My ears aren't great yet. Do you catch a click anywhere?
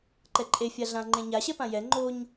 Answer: yes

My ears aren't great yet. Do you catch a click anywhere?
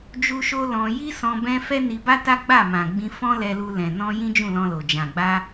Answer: no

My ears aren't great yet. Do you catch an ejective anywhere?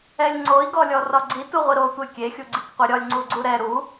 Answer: no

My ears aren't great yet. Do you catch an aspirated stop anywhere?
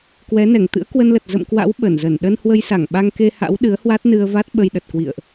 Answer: no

